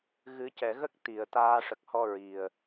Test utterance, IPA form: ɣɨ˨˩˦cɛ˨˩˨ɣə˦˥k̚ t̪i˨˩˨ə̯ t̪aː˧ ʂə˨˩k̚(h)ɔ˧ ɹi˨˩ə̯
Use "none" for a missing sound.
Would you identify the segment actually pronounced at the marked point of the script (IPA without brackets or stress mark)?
h